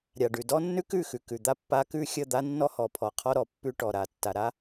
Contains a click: no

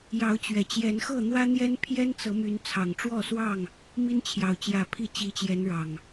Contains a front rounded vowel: yes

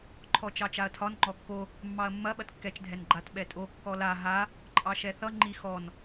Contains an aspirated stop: yes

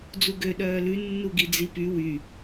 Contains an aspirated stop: no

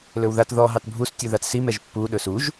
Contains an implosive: yes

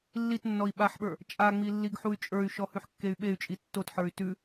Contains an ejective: yes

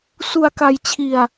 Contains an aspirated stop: yes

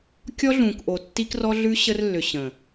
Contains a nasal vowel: yes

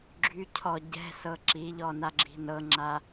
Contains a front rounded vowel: yes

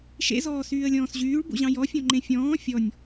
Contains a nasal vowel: yes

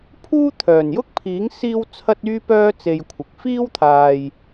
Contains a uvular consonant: no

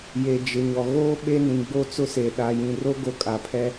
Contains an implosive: yes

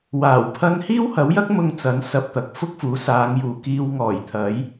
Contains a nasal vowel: no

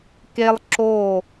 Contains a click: yes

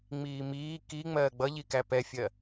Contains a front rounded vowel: no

